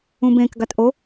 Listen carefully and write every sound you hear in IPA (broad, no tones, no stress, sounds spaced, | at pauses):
ũ b ẽ k ɡ a t ʔ o